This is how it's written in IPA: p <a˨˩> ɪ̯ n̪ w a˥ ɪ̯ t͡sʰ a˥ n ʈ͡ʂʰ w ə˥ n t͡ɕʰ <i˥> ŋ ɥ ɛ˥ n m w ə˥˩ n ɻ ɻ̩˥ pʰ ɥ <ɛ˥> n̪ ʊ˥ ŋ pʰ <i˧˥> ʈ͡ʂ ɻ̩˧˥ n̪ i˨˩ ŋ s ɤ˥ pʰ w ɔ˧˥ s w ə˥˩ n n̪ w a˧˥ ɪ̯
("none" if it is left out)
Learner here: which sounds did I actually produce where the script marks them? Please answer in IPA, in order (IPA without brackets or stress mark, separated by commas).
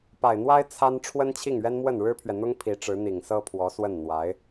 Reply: a˨˩, i˥˩, ɛ˨, i˧˥